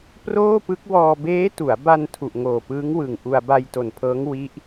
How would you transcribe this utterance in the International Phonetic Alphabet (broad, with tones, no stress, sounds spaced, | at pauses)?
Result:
p r oː˥˩ p ɯ˦˥ k̚ w ɔː˧ b eː˦˥ t u˩˦ a̯ b a˧ n tʰ u˨˩ ʔ ŋ oː˨˩ p ɯː˦˥ ŋ w ɯ˨˩ ŋ ʔ u˧ a̯ b a˧ j t o˨˩ n pʰ ɤː˦˥ ŋ w i˦˥ ʔ